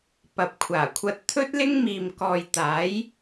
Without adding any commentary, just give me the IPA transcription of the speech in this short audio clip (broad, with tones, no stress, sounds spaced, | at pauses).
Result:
p ɐ˨ p̚ kʷʰ aː˨˩ kʷʰ ɐ˧ t̚ t̪ʰ ɵ˥ t̚ l ɪ˥ ŋ m iː˨ m k ɔː˨ j t̪ aː˨˥ j